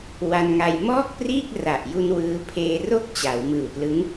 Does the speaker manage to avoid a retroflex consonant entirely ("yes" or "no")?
yes